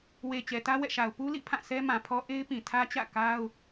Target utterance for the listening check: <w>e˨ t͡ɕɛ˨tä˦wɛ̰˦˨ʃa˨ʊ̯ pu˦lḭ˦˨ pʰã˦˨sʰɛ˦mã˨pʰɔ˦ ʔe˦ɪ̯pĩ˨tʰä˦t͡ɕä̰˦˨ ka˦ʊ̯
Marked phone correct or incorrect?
correct